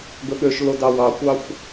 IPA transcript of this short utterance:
ɡɵɠøʃlo dɑwɑkʷɑxʷ

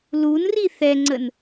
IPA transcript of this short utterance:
lunri θɛŋ͡ǀən

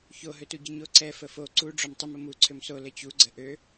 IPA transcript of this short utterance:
ço ɦøtuɟəɲo ǀɛ fəfo ǀu ɖ͡ʐomtˤəm əmu ǀʰømso lət͡ɕu ɡ͡ǀəʔø

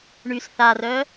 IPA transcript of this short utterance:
ɳys θarœ

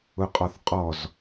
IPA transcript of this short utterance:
ʊqʼɔθqʼɔz

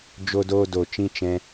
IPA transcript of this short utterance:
d͡ʒo˧doː˧do˨t͡ʃĩ˧ t͡ʃɛ̃˧

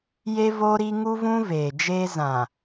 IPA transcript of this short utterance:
je˦voː˦ɾi˦ ŋu˦vũ˦veː˨d͡ʒeː˦ zã˨

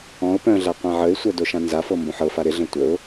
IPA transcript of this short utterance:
ɔ̃ʊ̯ pœ̃ɮa qʷãʕəɪ̯sʷœ doʃãnzafɤ mbõħɤfa ɾɪɮə̃ tʷəʊ̯

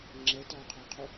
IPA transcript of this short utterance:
ŋ͡ǁɛtɒːqʰɒqʰu

